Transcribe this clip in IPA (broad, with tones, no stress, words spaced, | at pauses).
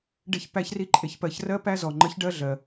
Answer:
ɖe˧çpæ˧çri˧ ǃʼe˨çpɜ˨ç rɜ˦pæ˦zɔ˨ ŋ͡ǃə˨˦çɖɜ˧ɮɜ˨